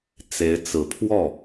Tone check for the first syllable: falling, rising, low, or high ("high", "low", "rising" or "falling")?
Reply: rising